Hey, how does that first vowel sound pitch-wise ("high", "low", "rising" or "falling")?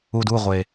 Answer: low